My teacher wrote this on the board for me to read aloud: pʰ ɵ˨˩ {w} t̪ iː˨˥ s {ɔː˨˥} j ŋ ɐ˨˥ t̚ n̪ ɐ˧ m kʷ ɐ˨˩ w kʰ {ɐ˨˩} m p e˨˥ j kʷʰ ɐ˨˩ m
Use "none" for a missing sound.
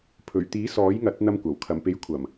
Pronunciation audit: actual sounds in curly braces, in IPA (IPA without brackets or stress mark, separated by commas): ɥ, ɔː˨˥, ɐ˨˩